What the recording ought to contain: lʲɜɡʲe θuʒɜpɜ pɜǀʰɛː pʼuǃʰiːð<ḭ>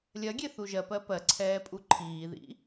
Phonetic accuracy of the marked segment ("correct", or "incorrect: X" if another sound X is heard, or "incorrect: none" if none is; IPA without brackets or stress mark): correct